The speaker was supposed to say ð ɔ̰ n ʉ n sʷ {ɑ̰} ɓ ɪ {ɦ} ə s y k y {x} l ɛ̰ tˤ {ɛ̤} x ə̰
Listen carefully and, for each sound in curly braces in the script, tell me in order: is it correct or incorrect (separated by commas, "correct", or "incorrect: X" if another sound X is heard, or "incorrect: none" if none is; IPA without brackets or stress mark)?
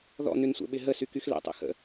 incorrect: ə̰, correct, correct, incorrect: ɛ̰